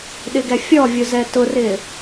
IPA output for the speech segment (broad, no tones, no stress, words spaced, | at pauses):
ɗɪɡɛfʲɔvʲʊ zɛtʊrɪ